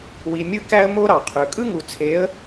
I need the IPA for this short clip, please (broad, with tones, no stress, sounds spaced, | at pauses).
w i˨ mʲ ɯ˧ k æ˦ ə̯ m o˦ ɾ ɑ˨ qʰ ø˨ kʼ ɯ˦ ŋ u˨ t͡sʰ e˨˦ ə̯